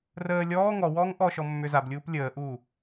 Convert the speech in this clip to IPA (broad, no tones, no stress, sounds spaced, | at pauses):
r əː lʲ ɔː ŋ ɔ w ɔː ŋ ʔ ɔ ʃ ɔ mː ʏ z a b lʲ uː p lʲ əː ʔ uː